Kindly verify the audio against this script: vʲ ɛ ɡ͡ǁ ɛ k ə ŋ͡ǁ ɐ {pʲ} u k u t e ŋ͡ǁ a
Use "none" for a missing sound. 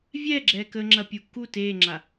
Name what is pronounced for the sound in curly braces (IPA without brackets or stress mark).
pʲ